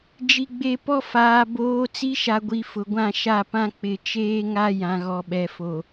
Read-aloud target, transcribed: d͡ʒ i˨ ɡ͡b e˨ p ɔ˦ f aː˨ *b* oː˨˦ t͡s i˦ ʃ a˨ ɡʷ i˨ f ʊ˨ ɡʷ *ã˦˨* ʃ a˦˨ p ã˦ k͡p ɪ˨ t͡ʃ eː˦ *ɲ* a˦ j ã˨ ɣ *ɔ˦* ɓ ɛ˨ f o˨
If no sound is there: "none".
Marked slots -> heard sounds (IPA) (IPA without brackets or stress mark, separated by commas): b, ã˦˨, ŋ, ɔ˨